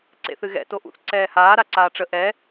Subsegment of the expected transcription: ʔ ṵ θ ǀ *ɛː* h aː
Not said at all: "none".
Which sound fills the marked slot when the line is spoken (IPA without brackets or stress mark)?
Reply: ɛː